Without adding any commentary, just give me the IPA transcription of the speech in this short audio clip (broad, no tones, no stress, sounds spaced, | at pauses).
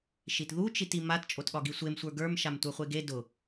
ʃ i t ð u t͡ʃ i t i m a t t͡ʃʼ o t ɠ ɒ ɡ i sʷ e m sʷ ə˞ ɡ ə˞ m ʃ a m tʷ ə˞ χʷ e ɡ e d ʊ